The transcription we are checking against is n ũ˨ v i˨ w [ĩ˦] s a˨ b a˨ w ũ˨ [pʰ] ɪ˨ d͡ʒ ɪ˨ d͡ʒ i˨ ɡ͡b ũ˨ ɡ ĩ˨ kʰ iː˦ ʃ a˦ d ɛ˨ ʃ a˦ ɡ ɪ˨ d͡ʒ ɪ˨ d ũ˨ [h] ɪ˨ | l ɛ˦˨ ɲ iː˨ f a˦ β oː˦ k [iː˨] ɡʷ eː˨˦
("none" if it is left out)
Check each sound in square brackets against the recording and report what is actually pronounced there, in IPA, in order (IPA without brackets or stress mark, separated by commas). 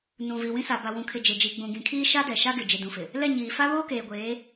ĩ˦, kʰ, f, eː˨